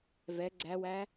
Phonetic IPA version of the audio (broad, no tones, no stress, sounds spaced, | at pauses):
v ɛ ɡ͡ǀ æ w æ